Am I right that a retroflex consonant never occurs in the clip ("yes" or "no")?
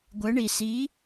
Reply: no